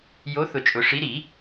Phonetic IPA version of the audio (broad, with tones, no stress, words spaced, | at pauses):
jo˨˥ θʊ˨˩˦t͡ʃʼʊ˨˩˦ʂi˨˥ ɾi˨˩˦